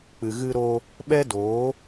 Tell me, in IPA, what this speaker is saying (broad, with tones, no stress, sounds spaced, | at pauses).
k͡p ɨ˨ ɣ ɨ˧ ɾ o˧ | ɓ ɛ˦ d oː˨˦